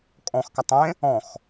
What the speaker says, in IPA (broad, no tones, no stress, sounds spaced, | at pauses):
kʼ ɔ̃ x k a tˤ ẽ | ɔ̃ x